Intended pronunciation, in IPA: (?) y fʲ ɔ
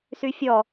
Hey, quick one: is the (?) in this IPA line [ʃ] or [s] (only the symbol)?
s